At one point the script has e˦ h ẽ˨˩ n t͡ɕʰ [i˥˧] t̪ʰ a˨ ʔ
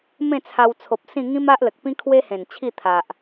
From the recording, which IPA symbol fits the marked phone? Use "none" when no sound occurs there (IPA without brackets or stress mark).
i˥˧